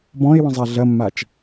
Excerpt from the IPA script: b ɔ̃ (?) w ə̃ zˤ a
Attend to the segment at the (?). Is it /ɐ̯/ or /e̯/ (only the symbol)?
e̯